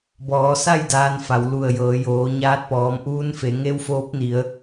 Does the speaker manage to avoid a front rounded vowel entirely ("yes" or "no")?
yes